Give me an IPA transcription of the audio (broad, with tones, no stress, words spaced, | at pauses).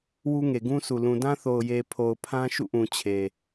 wu˦ŋe˨ɡũ˦sʰu˨ lũ˨dã˦θo˨ʊ̯ je˨pʰo˨ʊ̯ pʰã˦ʃṵ˦˨ʔũ˨ t͡ɕʰe˨